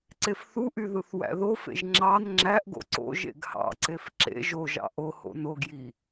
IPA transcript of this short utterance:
ǀ e f θ u ʔ y ð ɯ θ w æ̰ ð o f ḛ ʒ ŋ͡ǁ ɑ n ŋ͡ǁ æ ʔ ɡ o̰ ǀ o̰ ʒ ḛ ɡ h ɑ̰ ǀ e f ǁ ḛ ʒ o ʒ ɑ̰ ʔ o h o̰ n o ɡ j i

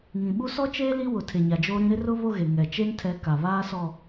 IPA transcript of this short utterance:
ŋ ĩ˨ ɓ u˦ s ɔ˦ t͡ʃ eː˦ l i˦ w ʊ˨ tʰ e˨ ɲ a˨ d͡ʒ oː˦ ɾ ĩ˦ ɾ ɪ˦ r ʊ˦ β o˦ ɣ e˨ ŋ ɛ˨ t͡ʃ e˦ n tʰ ɛ˨˦ k a˨ β aː˦ s ɔ˨

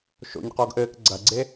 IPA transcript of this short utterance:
ʃ o̰ ɲ q ɔ ɡ ʔ ɘː k ɡ͡ǀ ɐ ɡ͡ǀ e

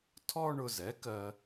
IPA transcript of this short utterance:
tʰ ɔ˥ ɳ ʊ˧ z ɛ˩˥ k ɜ˧

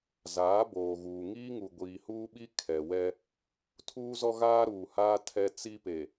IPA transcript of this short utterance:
z aː˨˦ b oː˨ ɣ uː˨ ŋ iː˦ ŋ u˨ ɡʷ iː˨ h uː˦ ɓ i˦ kʰ ɛ˨ w ɛ˦ | tʰ uː˦ z ɔ˦ ɣ aː˦ ɾ uː˨ h aː˦ tʰ ɛ˦ t͡s i˦ p e˨

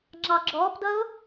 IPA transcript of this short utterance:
ŋ͡ǁ ɑ ɡ͡ǁ ɔː p d ʌ o̯

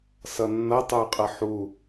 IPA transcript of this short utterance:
s ʌ nː ʌ tˤ ə˞ qʼ ʌ ħ u

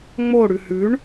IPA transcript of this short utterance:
ŋ͡m o ɽ ʉ h ʉ ɳ

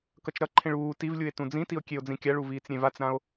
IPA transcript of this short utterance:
k ʌ t͡ʃ ɾ ʌ ǃʰ ẽ ɭ uː t i v lʲ u e̯ t ũ d͡z ĩ t i o̯ kʲ e o̯ d͡z ĩ kʲ a ɭ u v iː t͡s ɾʲ ẽ v a t͡s ɾ ã o̯

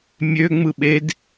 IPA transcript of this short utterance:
mʲ ø ŋ͡m ɯ ɓ e d

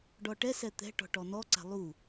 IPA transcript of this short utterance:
ɖ ɔ ʈ ɛ s ɛ t̪ ɛ̤ ʈ ɔ̤ ʈ ɔ n ɔ ǀ a̤ lˠ u

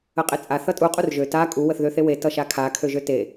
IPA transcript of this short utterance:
ə qʼ e t͡sʼ a θ ʌ tʼ u qʼ u r ʒ ø t a kʼ u w ə θ ð ø θ e w e t ʌ ʃ a kʰ a kʰ ø ʒ ø t e

